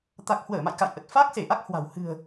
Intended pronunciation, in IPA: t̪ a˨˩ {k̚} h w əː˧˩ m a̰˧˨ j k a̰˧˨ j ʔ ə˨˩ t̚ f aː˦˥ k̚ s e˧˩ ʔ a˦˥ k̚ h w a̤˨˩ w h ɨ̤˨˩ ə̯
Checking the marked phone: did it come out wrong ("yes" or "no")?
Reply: no